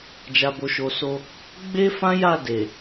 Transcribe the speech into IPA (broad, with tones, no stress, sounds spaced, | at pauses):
d͡ʒ a˨ b o˨ ʃ o˨ s o˧ | ɡ͡b e˦ f ã˦ j a˦˨ d e˨